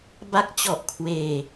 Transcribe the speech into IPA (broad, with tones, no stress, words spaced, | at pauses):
ba˦˥k̚t͡ɕɔ˨˩ʔkʰweː˧